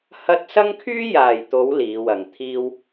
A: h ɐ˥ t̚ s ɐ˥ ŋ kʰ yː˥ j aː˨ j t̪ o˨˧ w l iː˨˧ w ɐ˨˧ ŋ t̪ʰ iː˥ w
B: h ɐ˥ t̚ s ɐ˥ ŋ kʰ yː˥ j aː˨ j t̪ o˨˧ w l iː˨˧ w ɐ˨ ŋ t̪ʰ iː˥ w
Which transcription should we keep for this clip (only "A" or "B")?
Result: B